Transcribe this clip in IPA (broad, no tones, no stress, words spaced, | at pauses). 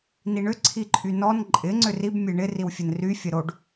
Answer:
niɳʏ ǀʰiǃʼynɔn ǃʼɪ ŋ͡ǀʏrib mʲeɳɪ riwfʲɘnry fʲəɾoɖ